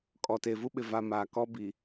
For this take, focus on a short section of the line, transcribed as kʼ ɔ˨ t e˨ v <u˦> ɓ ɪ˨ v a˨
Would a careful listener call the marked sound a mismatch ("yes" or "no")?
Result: no